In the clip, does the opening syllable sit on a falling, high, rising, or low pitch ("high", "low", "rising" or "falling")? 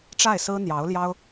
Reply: falling